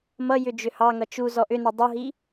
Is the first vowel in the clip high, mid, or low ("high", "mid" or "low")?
mid